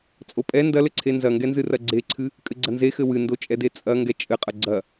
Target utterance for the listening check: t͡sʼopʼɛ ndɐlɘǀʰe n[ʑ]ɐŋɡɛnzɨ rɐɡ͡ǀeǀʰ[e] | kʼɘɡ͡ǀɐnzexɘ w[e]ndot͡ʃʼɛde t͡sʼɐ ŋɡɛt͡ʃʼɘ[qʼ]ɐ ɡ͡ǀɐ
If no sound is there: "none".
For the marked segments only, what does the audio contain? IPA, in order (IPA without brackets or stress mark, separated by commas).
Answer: z, ɨ, ɨ, qʼ